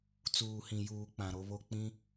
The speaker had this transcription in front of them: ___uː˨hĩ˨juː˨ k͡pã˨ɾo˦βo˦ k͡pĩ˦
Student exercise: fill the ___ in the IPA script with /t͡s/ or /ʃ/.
t͡s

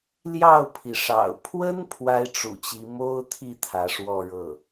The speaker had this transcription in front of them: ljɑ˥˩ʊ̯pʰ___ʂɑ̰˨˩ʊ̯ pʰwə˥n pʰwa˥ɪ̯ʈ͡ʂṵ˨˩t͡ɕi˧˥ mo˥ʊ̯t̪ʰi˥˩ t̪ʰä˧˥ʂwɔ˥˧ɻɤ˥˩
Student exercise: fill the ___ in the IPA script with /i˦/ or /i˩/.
i˩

